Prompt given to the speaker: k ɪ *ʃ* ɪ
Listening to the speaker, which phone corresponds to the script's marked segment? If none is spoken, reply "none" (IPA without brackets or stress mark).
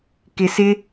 s